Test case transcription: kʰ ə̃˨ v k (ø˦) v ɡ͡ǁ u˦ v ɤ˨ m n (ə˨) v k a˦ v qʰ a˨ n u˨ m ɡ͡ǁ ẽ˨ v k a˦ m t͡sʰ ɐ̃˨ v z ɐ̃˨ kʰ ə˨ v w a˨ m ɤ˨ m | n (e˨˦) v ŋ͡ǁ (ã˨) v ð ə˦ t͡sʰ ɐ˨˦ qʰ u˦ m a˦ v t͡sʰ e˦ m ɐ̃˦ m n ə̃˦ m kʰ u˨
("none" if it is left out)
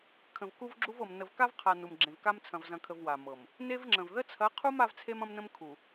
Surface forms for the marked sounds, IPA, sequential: u˦, ə˨, e˦, ə̃˨

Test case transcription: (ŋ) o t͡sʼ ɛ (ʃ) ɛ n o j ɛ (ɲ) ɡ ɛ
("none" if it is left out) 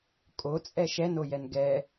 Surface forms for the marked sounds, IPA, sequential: kʼ, ʃ, n

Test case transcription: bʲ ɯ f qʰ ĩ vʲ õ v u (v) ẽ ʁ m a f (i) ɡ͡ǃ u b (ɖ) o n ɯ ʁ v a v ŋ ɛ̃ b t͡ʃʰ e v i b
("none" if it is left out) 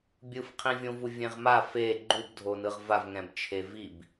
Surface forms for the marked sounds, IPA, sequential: vʲ, e, dʱ

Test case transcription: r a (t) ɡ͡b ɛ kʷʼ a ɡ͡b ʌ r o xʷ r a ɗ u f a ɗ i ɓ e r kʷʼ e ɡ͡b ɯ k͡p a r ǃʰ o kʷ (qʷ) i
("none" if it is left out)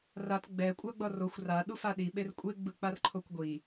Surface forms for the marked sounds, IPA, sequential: t, ɡʷ

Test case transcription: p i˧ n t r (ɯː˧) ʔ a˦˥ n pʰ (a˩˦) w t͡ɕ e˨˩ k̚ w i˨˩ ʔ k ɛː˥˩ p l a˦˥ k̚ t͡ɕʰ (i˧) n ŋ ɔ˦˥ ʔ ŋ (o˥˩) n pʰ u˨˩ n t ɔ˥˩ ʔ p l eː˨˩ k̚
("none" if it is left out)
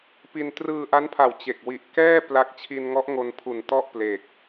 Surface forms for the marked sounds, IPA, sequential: ɯː˧, a˨˩, i˧, o˧

